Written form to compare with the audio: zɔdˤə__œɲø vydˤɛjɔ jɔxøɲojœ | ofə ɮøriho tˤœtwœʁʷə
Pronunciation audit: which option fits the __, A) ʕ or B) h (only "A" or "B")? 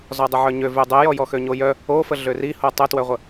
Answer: A